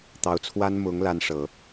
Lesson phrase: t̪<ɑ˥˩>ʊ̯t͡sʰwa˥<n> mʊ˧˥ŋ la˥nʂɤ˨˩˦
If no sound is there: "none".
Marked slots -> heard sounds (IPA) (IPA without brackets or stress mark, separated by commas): ɑ˧˥, n